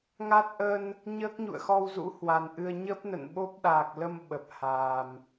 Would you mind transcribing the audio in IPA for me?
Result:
ŋ a˦˥ t̚ ʔ ə˧ n | ɲ əː˦˥ k̚ ɲ ṵ˧˨ ə̯ x ɔ˧ w z ṵ˧˥ h w a˨˩ n ʔ ɨ˧ ə̯ ɲ ə˦˥ p̚ n ə̰˧˨ n ɓ o˦˥ p̚ ɗ aː˨˩ k̚ l ə˧ m ɓ ə˨˩ p̚ h aː˨˩ m

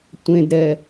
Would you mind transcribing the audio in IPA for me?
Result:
tʷ ẽ d ɾ ɛ

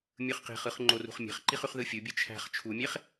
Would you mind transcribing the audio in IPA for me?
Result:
mʲ ɯ χ q e̤ χ ɯ χ ŋ͡ǃ o r ṳ χ mʲ e̤ χ ǃ i χ y χ ð ɯ fʲ u bʲ ɯ t͡ʃʰ æ̤ χ t͡ʃʰ u mʲ e χ

